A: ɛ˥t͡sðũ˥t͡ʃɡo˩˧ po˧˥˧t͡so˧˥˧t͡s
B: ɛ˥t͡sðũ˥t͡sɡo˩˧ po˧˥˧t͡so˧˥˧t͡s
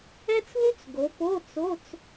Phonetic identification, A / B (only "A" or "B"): B